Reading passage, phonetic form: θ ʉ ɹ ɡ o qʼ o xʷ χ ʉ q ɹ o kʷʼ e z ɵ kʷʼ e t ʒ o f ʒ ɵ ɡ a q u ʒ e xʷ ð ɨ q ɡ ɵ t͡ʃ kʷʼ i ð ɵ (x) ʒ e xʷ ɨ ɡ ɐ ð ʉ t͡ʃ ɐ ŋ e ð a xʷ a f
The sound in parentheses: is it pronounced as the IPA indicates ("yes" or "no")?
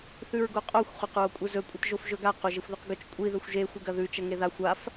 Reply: no